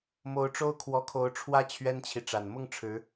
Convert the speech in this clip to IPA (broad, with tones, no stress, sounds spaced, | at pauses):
m o˧˥ ʊ̯ ʈ͡ʂ o˥ ʊ̯ kʰ w ɔ˧˥ kʰ o˧˥ ʊ̯ ʈ͡ʂʰ w ä˥ t͡ɕʰ ɥ ɛ˥ n t͡ɕʰ i˨ ʈ͡ʂ a˨˩ n m ʊ˥˩ ŋ ʈ͡ʂʰ ɻ̩˧˥